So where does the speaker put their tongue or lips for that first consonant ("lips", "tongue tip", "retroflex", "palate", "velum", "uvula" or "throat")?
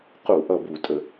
uvula